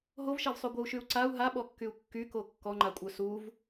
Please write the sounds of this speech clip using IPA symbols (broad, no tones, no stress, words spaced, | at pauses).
ɦovʃɛvsˤy ɡʷəu̯ʃyu̯ ǀau̯ ɦaɓɔkːyu̯ kːyko kːɔŋ͡ǃakʷʼœ suv